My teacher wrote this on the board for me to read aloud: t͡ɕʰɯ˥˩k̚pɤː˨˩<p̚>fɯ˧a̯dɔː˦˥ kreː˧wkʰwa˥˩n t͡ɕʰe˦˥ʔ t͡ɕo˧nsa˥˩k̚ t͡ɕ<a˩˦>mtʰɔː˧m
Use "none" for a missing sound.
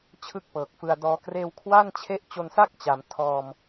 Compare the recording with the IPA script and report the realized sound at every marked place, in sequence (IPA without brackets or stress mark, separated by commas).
k̚, a˩˦